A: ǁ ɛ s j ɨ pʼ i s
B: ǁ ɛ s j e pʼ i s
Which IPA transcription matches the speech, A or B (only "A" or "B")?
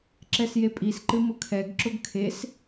B